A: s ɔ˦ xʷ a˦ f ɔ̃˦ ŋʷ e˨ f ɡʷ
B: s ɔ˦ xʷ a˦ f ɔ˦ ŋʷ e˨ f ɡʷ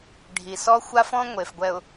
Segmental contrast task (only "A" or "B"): A